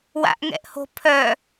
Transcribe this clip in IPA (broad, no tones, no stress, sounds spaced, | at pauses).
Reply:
w a̰ ʔ ŋ ɛ̰ ʔ h o̤ pʰ œ